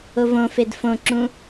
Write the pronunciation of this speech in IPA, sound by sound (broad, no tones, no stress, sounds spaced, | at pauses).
o v õ f e d f õ ǁ ũ